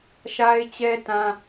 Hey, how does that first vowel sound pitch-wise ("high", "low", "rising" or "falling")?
high